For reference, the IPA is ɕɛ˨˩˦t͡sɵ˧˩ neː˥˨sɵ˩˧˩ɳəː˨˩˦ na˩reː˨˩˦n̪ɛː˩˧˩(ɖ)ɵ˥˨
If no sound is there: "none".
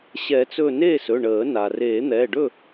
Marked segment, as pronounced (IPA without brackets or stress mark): ɖ